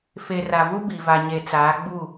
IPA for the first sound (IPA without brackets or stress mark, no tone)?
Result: f